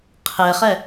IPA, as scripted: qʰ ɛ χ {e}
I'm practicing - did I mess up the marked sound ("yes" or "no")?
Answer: yes